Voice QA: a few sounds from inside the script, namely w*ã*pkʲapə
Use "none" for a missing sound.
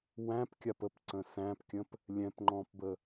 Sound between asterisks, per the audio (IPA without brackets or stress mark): æ̃